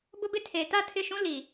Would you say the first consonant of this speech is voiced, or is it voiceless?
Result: voiced